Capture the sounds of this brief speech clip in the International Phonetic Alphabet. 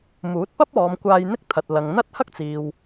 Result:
m uː˨˥ t̚ p ɐ˥ p̚ ɔː˨˧ m kʷ aː˧ j n̪ ɪ˥ k̚ t̪ʰ ɐ˨ t̚ l ɐ˨ ŋ n̪ ɐ˥ t̚ h ɐ˥ k̚ t͡s iː˨ w

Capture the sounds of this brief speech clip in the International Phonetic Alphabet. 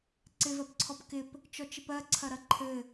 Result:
ǀ ɪ v ɜ p ǀʰ ɔ p k ɪ p | t͡ʃ ɔ t͡ʃ ɪ p ɜ ǀʰ ɐ ɾ ɐ ǃʰ ɘ

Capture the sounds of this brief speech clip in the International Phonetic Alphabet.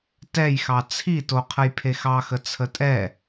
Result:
t ɛ j x ɑ t͡sʰ i t o qʰ ə j pʰ e x ɑ x ə t͡sʰ ə tʼ ɛ

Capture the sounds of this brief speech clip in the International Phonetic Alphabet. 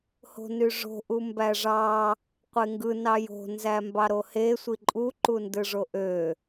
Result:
h o̤ n y ʐ o̤ ʔ u m b æ ʐ ɑ | qʷ e ŋ ɡ ɯ n ɑ j o̤ n z æ m b ɑ ɾ o h e sʷ i ǃʼ u ǃ u n d ɯ ʐ o ʔ ø

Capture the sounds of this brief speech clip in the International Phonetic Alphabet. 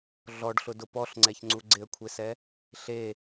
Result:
ɮ ɔ ɖ ɬ ʊ d ʊ p ɔ ɬ ŋ͡ǀ ɛ ç ŋ͡ǀ u ɡ͡ǀ ɪ ə̯ kʷʰ e s ɛ | ɬ e

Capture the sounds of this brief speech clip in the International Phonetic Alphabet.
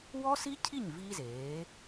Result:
w ɔ˥ s i˥ cʰ i˥˩ ɲ v i˥ z eː˩˥

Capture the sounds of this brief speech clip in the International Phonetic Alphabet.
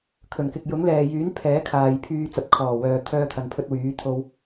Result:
kʰ ɵ˨˩ n k ɪ˨ k̚ j ʊ˨˥ ŋ l ɛː˨ j yː˨˥ n pʰ ɛː˨˥ kʰ aː˨ j pʰ yː˧ t͡s ɐ˨ p̚ kʰ ɔː˨˩ w œː˨ t̪ʰ œː˧ t̪ʰ ɐ˨ n pʰ ɵ˧ t̚ w yː˨˥ t̪ʰ o˧ w

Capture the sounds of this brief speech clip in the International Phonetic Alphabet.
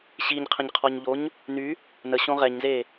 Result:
ɕ i ɲ qʰ ə̃ ɲ qʰ ɔ ɲ ʎ o ɲ | n y | n ə ɕ õ ʁ ɛ ɲ z e

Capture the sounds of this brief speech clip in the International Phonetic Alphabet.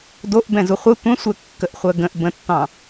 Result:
d o ʔ b ɛ̃ z u χʷ ə tʷ ə̃ sʷ ɛ kː ə ʔ χʷ ɜ ɡ ə̃ ʔ b ə̃ tː ɑ̃

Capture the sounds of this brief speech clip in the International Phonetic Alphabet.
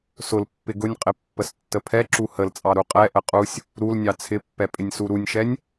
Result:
s ʊ l pː ɪ ɡ ʊ nʲ qʼ ɪ pː ə s tː ə pʰ ɛ ǁ u h ə l t͡sʼ ɑ ɾ u qʼ ɛ ʔ ə qʼ u sʲ | ɾ u l nʲ ɑ t͡sʰ ɪ pː ɛ pʼ ɪ nʲ s u ɾ u nʲ ʃ ɛ nʲ

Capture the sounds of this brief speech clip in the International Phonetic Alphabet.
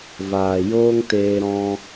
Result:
v aː˨ j oː˦ ŋ t eː˧ ɾ ɔ̃˧

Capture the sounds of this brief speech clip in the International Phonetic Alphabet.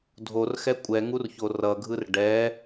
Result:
dʱ o r x ɛ kʷʼ ɛ ŋ u r ç o r ʌ ɡʱ ɯ r ɖ ɛ

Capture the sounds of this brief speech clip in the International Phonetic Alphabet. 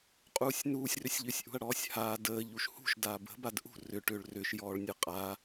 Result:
qʼ uː sʲ n uː sʲ r ʏ sʲ ʎ ʏ sʲ ʔ ṳ ɐ̯ ɽ ɔː sʲ h aː d əː ʎ u ʃ h ṳ ʃ d aː b ə̤ b a d ʔ ṳ r ʏ ʈ ʏː ɭ r ʏ ʃ j ɔː ɭ nʲ ə qʼ a

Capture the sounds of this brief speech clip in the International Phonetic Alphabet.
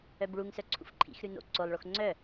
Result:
œ b ɭ u ŋ s œ ǀʰ ṵ f ǃʰ ḭ x ɾ ʉ n o̰ ǀ o lˠ ɭ o x ŋ͡ǀ œ

